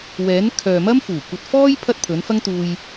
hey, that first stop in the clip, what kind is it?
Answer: aspirated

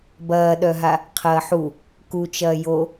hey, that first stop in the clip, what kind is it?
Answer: plain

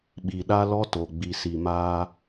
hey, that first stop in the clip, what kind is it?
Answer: implosive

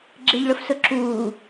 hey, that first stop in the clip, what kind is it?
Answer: click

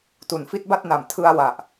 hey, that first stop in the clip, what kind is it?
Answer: plain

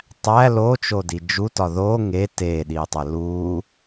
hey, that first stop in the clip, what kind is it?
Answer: plain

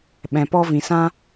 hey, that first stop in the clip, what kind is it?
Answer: implosive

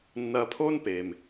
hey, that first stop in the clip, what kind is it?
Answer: aspirated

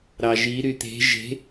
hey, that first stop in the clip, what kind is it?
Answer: plain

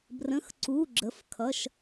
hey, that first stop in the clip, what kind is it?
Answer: plain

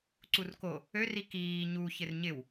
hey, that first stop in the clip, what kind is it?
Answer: click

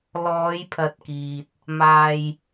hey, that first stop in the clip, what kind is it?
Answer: aspirated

